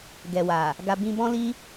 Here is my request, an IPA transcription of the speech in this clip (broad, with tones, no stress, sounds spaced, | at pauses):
ɡ ɛ˨ w a˨ | ɡ a˧ b ĩ˧ b ɔ̃˦ l i˦